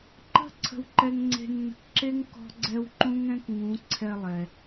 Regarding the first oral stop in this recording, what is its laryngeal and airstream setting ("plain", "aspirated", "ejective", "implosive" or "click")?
click